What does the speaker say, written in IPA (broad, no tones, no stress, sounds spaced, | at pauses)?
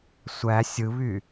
sʷ æ sʲ ɯ β y